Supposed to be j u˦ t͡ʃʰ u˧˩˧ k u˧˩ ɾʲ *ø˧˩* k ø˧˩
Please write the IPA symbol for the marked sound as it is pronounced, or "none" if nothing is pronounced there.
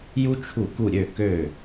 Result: ø˧˩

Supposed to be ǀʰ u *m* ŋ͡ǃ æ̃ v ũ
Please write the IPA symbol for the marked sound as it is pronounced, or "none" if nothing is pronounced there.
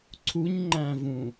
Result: ɲ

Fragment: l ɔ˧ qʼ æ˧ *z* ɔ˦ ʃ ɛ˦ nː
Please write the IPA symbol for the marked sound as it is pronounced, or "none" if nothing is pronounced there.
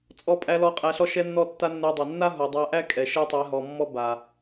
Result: ɬ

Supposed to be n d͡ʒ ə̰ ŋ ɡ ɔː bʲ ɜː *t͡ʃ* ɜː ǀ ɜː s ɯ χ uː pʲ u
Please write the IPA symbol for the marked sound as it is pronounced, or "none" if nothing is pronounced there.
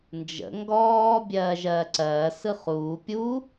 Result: ʒ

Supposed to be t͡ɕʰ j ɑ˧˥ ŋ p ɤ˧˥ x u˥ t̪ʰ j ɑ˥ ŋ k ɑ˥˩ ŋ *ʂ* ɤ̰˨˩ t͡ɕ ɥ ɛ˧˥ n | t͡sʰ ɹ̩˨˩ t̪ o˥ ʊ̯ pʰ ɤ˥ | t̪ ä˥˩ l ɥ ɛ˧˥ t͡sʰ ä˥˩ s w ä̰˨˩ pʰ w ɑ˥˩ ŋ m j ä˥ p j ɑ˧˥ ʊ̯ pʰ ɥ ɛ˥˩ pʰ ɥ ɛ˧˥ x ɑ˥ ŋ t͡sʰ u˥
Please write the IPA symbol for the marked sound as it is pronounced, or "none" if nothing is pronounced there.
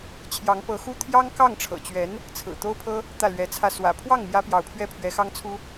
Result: ʈ͡ʂʰ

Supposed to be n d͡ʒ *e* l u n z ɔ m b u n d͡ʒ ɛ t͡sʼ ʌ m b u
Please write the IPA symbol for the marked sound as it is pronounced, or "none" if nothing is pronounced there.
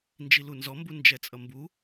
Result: i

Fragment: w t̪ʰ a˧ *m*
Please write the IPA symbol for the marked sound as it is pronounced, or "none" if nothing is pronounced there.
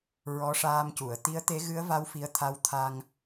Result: ŋ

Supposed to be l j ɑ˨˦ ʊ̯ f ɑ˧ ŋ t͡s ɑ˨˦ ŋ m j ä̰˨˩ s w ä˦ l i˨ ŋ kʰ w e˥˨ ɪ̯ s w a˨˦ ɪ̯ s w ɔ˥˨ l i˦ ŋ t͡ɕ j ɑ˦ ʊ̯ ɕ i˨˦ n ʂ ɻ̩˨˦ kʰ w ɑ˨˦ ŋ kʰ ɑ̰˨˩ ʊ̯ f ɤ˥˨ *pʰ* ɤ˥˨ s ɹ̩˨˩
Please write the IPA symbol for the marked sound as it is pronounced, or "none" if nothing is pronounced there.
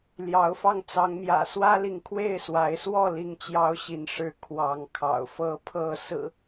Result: pʰ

